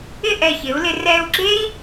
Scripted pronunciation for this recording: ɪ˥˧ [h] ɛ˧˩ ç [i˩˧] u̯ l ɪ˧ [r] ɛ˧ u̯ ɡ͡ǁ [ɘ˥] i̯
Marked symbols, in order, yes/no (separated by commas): no, no, yes, no